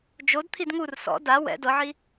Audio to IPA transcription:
d͡ʒ o d t̪ʰ i d ŋ u r s ɔ̰ d a w ɛ̰ d ɤ ʕ i

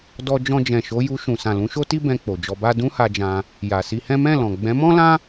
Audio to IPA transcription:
d ɔ˧ d͡ʒ ɔ̃˧ d͡ʒ ɛ̃˨ ʃ o˨˦ j u˧ ʃ ũ˨ s ã˨ l ũ˨˦ ʃ o˦ t i˦ b ɛ̃˧ k͡p o˨ d͡ʒ ɔ˧ b a˦ d ũ˦ h a˧ d͡ʒ ã˧ | j a˨ s i˧ h ɛ̃˦ m ɛ̃˦˨ l ɔ̃˨ ɡ͡b ɛ̃˨˦ m ɔ̃˦ l ã˦

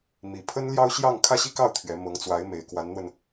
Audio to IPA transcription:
m i˨˩ pʰ ə˥ n l j ɑ˥ ʊ̯ ɕ j ɑ˥˧ ŋ kʰ ä˥˧ ɕ i˥˧ k ɑ˥˩ ʊ̯ t̪ʰ ɥ ɛ˧˥ m ɤ˧˥ ŋ t͡s w a˧˥ ɪ̯ m e˨˩ ɪ̯ k w a˧˥ n n̪ w ə˧ n

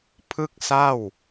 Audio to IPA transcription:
pʰ ɯ˥˩ k̚ s a˥˩ w

